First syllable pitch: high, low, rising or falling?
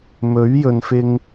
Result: rising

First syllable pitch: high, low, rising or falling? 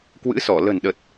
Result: rising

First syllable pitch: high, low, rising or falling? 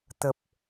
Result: low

